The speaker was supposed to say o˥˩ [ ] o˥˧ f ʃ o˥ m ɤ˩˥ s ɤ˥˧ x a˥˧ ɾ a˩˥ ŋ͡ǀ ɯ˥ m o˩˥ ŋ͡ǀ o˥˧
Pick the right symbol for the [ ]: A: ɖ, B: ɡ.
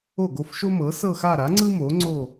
B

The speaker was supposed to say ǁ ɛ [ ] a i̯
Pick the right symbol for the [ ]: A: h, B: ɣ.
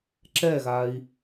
B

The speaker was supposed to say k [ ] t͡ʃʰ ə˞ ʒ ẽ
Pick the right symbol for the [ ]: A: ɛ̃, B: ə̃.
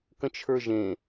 B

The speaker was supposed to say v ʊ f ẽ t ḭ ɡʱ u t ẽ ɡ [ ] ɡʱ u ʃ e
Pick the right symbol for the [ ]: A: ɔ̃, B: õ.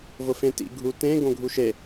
B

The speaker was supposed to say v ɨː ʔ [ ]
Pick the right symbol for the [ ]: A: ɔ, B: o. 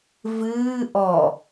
A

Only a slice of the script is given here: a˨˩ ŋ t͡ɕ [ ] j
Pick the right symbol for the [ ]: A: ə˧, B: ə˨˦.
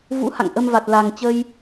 A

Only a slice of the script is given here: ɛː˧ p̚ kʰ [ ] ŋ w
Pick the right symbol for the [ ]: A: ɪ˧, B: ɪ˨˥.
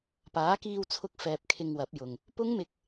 A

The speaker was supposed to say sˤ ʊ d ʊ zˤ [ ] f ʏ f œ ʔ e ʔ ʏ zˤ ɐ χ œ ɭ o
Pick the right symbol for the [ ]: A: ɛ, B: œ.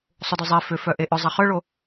A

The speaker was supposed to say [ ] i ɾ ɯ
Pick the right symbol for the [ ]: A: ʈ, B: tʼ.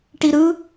A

